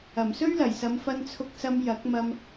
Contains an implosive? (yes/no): no